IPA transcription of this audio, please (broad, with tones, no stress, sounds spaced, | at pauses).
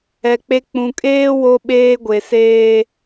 ɛ˨ k͡p e˦ k͡p ũ˨ kʼ eː˦ w o˦ ɓ eː˦ ɡʷ e˨ s eː˦